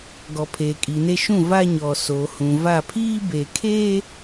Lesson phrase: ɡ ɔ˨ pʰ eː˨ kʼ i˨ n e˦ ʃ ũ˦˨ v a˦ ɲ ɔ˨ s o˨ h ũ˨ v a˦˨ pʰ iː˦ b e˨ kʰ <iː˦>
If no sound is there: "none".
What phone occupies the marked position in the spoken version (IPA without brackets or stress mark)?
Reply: eː˦